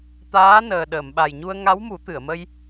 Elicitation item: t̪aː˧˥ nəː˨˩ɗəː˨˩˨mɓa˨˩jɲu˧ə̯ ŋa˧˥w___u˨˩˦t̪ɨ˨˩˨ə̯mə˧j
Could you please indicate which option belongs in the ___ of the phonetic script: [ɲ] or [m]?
m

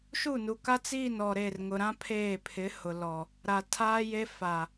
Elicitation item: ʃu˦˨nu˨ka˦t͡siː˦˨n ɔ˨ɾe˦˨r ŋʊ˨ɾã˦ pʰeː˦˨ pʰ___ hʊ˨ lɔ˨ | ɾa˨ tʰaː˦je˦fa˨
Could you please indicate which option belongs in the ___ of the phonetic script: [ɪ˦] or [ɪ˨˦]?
ɪ˨˦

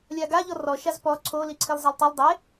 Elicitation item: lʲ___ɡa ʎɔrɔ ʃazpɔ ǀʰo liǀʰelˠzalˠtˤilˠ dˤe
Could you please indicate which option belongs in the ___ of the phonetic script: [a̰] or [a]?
a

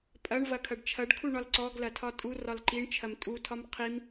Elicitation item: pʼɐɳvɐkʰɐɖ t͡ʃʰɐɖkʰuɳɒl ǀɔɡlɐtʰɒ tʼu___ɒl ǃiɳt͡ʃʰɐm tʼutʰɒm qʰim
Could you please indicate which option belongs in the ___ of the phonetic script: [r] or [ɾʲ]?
r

